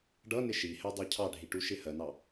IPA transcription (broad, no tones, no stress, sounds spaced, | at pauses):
ɖ ʌ n ɪ ʃ i h ɛ dˤ ɜ cʰ ɑ ɖʱ i ʈ u ʃ ɪ h ɜ n ɑ